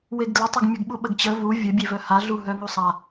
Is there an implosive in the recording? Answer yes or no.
yes